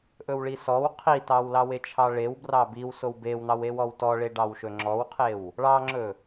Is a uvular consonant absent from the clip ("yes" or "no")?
no